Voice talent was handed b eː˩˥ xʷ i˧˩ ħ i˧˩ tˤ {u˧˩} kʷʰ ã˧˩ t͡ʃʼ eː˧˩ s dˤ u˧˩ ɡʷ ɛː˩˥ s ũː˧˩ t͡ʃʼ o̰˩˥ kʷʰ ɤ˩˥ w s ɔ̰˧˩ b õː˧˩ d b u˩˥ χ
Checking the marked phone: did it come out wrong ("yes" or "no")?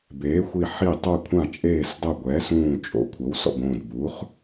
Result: yes